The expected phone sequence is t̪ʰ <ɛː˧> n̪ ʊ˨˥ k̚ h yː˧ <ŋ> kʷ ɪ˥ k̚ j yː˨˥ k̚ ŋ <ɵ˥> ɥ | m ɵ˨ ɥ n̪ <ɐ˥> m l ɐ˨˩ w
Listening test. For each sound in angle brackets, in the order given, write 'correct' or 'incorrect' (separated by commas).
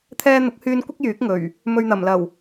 correct, incorrect, incorrect, incorrect